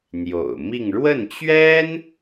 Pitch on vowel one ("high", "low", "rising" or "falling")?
low